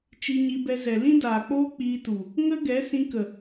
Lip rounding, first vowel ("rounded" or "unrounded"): unrounded